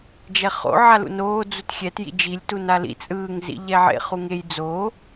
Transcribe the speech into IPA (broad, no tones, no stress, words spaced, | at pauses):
d͡ʒɛχo̰ʕa lṵnoː d͡zutxʲɛt jḭd͡ʒilʲtu nalḭ t͡sʼɯːŋzḭ ʎɛʕḛ χuŋej d͡zo